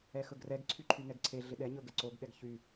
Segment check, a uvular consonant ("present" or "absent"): absent